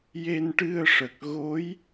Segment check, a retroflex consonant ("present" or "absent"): present